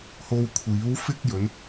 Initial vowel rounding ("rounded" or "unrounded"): rounded